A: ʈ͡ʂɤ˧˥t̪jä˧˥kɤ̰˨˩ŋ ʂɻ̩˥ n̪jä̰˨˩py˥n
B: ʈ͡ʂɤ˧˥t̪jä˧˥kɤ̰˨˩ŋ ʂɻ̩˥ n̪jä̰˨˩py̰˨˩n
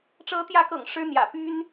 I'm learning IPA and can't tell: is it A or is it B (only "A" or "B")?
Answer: A